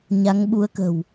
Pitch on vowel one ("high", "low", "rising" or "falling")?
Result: rising